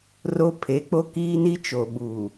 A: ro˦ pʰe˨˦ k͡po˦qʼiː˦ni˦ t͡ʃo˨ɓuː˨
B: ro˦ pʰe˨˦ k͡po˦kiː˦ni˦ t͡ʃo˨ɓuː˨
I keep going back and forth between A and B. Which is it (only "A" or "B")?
B